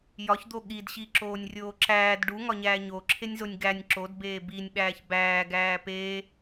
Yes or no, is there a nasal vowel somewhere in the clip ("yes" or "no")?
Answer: no